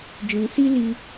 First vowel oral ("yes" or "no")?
no